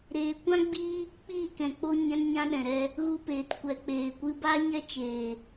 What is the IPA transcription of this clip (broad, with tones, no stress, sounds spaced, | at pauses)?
ɾ eː˨ kʷ ã˦ ɡ͡b iː˦ | k͡p iː˦˨ k ɛ̃˨ k͡p o˧ ɲ ɛ̃˧ n ɲ ã˧ ɗ ɛ̃˨ ɾ ɛ˧ | ɣ u˧ p eː˨ t kʷ ɛ˨ k͡p eː˨ kʷ ɨ˧ b aː˦ ɲ ɛ˦ t͡ʃ eː˨